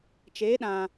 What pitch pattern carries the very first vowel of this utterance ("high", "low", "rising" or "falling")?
rising